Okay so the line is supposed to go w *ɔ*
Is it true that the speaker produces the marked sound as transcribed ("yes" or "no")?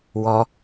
yes